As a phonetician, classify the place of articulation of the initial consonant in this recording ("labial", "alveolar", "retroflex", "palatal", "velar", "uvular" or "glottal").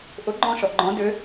glottal